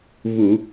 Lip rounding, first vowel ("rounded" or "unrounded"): rounded